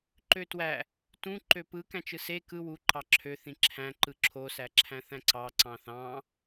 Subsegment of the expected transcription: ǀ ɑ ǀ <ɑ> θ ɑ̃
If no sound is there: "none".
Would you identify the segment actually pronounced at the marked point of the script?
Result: ɑ̃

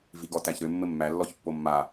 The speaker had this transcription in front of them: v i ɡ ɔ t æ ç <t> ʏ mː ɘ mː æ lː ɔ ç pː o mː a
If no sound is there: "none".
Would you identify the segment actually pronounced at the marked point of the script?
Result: ɾ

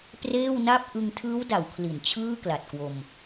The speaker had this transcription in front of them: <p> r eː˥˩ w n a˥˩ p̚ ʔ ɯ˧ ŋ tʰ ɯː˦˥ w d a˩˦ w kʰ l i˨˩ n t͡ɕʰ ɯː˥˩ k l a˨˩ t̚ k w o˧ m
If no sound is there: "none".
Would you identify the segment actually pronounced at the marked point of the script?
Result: p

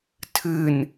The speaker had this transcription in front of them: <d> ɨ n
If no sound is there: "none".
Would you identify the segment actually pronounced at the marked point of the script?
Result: tʰ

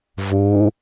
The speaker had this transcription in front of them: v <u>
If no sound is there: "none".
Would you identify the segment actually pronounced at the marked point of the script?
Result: u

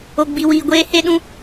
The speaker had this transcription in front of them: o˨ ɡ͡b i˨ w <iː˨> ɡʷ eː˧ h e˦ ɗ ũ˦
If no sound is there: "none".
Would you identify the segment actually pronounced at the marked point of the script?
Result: iː˨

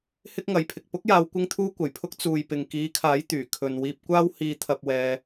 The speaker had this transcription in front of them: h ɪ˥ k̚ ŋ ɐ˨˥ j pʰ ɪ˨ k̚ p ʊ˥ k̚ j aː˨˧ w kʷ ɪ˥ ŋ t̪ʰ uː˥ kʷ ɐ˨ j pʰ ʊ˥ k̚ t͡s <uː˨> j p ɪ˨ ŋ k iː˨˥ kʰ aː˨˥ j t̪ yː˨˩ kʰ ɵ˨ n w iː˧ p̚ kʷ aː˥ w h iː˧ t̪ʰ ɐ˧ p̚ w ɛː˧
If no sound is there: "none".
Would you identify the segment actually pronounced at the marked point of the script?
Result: uː˨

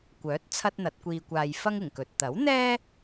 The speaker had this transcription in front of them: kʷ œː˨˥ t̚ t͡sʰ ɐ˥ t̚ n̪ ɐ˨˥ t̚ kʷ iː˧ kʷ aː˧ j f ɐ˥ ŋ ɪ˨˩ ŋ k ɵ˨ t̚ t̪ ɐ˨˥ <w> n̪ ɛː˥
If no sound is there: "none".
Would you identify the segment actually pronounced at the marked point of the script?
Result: w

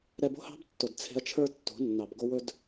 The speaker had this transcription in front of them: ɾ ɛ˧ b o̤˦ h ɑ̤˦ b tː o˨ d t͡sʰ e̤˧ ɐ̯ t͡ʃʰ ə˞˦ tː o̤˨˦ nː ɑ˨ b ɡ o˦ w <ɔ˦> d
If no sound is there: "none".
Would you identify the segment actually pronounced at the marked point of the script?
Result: ɵ˦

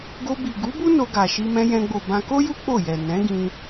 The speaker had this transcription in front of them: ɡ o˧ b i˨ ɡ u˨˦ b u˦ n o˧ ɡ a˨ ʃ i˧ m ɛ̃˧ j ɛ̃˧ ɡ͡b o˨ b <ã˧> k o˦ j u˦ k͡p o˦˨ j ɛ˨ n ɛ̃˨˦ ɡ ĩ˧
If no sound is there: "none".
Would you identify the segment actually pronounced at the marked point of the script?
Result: ã˧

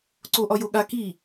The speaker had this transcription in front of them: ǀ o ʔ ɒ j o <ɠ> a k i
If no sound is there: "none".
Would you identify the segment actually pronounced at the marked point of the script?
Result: ɠ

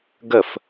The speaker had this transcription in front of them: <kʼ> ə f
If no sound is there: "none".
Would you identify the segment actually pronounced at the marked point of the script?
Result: ɡ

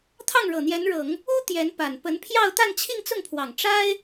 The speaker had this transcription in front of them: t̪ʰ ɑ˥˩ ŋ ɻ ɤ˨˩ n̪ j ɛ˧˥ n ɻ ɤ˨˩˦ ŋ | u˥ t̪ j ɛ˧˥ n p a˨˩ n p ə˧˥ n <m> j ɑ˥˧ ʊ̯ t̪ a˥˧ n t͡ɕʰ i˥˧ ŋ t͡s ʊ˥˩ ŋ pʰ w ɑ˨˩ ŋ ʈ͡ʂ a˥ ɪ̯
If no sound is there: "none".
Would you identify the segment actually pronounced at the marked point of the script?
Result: pʰ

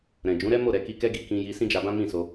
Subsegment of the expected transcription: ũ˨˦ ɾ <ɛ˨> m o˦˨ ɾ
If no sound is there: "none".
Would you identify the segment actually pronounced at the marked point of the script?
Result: ɛ˦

